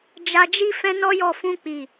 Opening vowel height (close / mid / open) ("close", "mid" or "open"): open